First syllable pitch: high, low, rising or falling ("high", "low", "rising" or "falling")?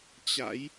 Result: rising